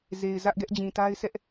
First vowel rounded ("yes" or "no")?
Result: no